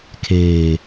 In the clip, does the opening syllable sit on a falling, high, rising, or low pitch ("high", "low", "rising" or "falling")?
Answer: low